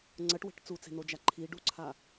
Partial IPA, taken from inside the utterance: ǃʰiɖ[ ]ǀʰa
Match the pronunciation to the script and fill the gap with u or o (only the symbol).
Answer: u